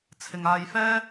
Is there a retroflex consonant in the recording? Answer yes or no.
no